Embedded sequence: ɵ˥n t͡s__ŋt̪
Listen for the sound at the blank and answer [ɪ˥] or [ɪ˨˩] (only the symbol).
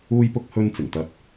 ɪ˨˩